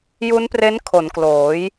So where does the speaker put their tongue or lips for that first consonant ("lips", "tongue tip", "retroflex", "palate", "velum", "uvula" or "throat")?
palate